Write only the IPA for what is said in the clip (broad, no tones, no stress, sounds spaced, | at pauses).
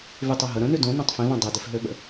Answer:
v y tˤ o ɦ ə ɾ ə̃ n y d õ n õ tˤ f ĩ v ɐ̃ dˤ i d ɪ f ɦ ø ɓ ə̰